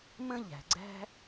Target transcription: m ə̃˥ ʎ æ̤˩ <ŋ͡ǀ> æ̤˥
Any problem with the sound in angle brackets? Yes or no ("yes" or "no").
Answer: yes